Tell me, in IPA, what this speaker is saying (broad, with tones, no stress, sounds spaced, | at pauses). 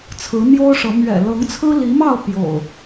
t͡sʰ ɹ̩˨˦ n̪ j o˦ ʊ̯ ʂ ɤ˨˦ m ɥ ɛ̰˨˩ l ɤ˨˦ ŋ t͡sʰ ɹ̩˦ l i˨˦ m ɑ˥˨ ʊ̯ p j o̰˨˩ ʊ̯